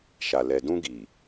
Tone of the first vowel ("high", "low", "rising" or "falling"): low